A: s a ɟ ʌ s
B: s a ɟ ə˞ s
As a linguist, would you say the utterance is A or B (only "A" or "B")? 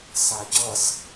A